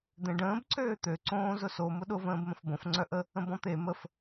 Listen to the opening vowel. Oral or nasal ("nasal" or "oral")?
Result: nasal